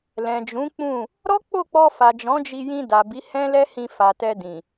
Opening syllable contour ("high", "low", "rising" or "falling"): low